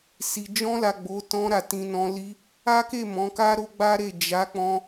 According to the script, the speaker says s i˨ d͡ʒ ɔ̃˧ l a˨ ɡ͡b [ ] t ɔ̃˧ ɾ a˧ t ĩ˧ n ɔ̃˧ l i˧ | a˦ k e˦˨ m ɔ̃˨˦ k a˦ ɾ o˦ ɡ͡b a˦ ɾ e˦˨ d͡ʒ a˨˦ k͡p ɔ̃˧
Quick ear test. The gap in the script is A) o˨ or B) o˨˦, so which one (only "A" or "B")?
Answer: B